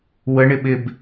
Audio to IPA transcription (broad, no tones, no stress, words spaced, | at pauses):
wəɳɪ ɓɪb